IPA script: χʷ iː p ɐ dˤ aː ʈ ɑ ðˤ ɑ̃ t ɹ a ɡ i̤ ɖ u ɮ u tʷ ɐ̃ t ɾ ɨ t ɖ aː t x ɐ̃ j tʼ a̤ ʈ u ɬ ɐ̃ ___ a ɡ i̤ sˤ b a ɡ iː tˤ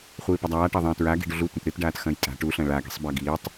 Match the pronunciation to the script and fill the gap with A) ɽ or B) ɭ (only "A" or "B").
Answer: B